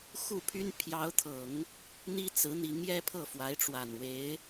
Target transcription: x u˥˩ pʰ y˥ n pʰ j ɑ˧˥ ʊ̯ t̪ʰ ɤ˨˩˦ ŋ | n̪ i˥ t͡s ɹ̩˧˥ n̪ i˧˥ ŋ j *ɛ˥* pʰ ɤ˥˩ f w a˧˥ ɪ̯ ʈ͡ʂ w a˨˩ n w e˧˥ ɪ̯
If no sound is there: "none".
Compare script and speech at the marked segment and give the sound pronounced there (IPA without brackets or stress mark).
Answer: ɛ˥